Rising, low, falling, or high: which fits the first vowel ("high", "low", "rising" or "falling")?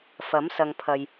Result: rising